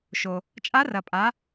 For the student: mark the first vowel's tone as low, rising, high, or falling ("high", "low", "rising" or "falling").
low